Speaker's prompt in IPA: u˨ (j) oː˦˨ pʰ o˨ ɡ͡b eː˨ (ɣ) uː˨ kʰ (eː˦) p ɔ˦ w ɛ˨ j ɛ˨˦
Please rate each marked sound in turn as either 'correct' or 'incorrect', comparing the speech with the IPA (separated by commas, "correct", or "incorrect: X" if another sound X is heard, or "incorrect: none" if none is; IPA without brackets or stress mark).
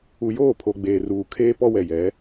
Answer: correct, incorrect: r, correct